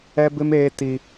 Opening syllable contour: high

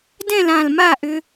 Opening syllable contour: falling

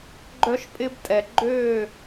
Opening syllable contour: high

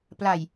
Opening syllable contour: low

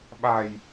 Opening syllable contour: low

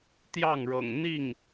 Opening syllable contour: falling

